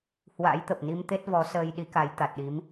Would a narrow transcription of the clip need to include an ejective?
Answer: no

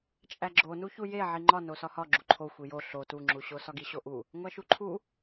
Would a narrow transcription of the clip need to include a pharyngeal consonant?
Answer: yes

